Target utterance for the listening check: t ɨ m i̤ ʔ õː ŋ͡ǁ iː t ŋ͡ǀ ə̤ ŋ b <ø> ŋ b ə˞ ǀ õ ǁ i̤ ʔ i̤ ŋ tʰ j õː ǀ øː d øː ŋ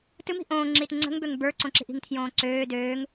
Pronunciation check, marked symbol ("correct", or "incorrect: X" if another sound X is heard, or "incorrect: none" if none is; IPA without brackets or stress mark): correct